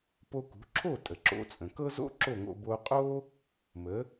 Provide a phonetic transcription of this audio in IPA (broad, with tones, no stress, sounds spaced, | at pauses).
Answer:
p o˧ k ṳ˩˥ ǁʰ o˥˩ tʼ ə˩ ǁ o̰˧ t͡sʼ ə̃˩ k ɤ˥ z o̰˥ ǁ o˥˩ ŋ o̰˧ b o˧ qʼ o˥ | m ə˩˥